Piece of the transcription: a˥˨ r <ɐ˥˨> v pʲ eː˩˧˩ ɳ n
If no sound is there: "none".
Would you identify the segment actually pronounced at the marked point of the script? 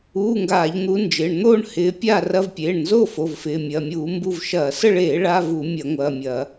ɐ˧˥˧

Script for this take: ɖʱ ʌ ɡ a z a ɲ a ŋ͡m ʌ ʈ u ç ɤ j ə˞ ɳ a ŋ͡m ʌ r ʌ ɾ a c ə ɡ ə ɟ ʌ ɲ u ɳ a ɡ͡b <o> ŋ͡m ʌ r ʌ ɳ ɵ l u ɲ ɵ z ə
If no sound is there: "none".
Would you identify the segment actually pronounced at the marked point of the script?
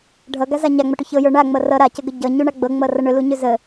ɤ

